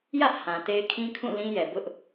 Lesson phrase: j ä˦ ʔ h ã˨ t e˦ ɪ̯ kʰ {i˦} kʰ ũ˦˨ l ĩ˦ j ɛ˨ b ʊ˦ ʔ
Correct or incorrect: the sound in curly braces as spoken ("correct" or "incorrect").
incorrect